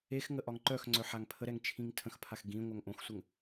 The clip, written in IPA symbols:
e x ŋ ə ʔ ɒ ŋ ǃ œ x ŋ͡ǀ œ ħ a ŋ pʰ ə ɾ ɛ ŋ t͡ʃʰ ĩ ŋ tʰ ə̃ x pʰ a x ɡ ĩ ŋʷ œ ŋ ʔ õ x sʷ ə ŋ

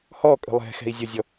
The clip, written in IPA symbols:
h ɔ kʼ ə̤ lˠ ɛ̤ x ɛ̤ i̯ zʲ ɔ zʲ ɔ

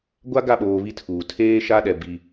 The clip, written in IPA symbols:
ɡʷ a˦ ɡ a˦˨ ɓ oː˨ β i˦ tʰ uː˨ tʰ eː˦ ʃ a˦ ɗ ɛ˨ b i˦

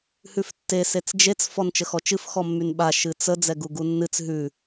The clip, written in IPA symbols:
h ʉ f tː e s e t͡s d͡ʒ e t͡s f ɔ n t͡ʃ ə x ɔ t͡ʃ ɨ f x ɔ mː y n ɓ a ʃ ɨ t͡s ə d͡z ɛ ɡ u ɡ u nː ɨ t͡s ɦ ʉ

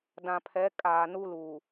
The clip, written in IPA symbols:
d ã˨ pʰ ɛ˨˦ kʼ aː˨ n u˦ l uː˨

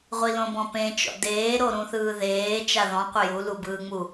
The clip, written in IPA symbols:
ʁʷ i l õ b ɔ̃ p ẽ t͡ʃ ɔ̰ d eː ɾ o ɾ ũ θ ɯː ð eː t͡ʃ a ð ɔ̃ qʷ ɘ j u l u b ɯː ŋ͡m u

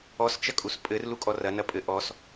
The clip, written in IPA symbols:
ɔ s t͡ʃ ɐ kʼ u s pʼ ɘ r l u kʼ ɔ r ɐ n ɐ pʼ ɘ ʔ ɔ s

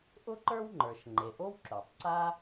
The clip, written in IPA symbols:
ʔ ʊ˥ ǃ ə˞˥ w ŋ͡ǃ ə˞˩ ʃ ŋ͡ǃ e˩ ʔ o˥ w ǁ o˩ tˤ ǀ a˥

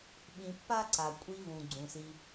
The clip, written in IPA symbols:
ɓ ĩ˨ pː a˦ ǀ a˩ kʷʼ i˨ v ũ˩ ɡ͡ǀ ũ˩ s i˨

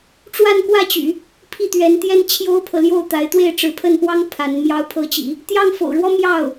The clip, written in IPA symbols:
ʈ͡ʂ w a˥˧ n k w ä˥˩ t͡ɕ y̰˨˩˦ | pʰ i˥˩ t̪ ɥ ɛ˧˥ n t̪ j ɛ˥ n t͡ɕʰ j o˥ ʊ̯ pʰ ɤ˨ l j o˥˩ ʊ̯ t̪ a˧˥ ɪ̯ t̪ w e˥˩ ɪ̯ ʈ͡ʂ ɻ̩˧˥ pʰ ə˥˩ n p w ɑ˥ ŋ pʰ a˧˥ n m j ɑ˧˥ ʊ̯ pʰ ɤ˧˥ t͡ɕ ḭ˨˩˦ | t̪ j ɑ˥˩ ŋ f o̰˨˩ ʊ̯ ɻ w ɔ˥ m j ɑ˥˩ ʊ̯

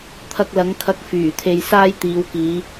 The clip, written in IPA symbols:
t̪ʰ ɐ˧ k̚ l ɐ˨˧ ŋ kʰ ɐ˧ k̚ f yː˨˩ t̪ʰ e˧ j s aː˥ j t̪ iː˨˧ w k iː˨˧

